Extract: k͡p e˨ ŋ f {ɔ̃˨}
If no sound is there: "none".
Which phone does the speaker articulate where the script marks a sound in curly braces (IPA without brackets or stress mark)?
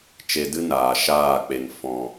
ɔ̃˨